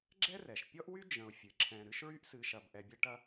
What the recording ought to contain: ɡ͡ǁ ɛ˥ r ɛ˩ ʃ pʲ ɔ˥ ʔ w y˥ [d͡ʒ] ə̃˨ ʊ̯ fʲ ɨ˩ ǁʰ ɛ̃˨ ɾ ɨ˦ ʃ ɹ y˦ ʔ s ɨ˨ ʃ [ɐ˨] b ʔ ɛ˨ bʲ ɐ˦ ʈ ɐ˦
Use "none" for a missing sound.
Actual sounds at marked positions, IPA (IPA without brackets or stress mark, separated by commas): d͡ʒ, ɐ˨